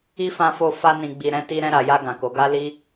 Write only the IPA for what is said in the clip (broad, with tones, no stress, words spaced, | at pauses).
i˦fã˧fo˧ fa˧nĩ˨ɡ͡bi˨ ɾɛ̃˨˦ ti˧ɾɛ̃˧ɾa˨ja˧ ɡã˨ko˨˦ɡa˦li˦